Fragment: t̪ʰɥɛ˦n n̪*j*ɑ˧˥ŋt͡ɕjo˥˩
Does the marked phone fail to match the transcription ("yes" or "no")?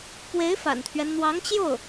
yes